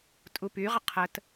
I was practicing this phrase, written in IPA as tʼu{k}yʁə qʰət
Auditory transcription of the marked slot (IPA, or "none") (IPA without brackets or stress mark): p